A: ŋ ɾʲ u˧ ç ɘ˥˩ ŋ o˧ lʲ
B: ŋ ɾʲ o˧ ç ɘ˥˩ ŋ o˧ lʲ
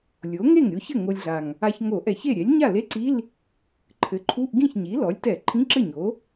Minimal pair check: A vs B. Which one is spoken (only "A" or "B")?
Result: B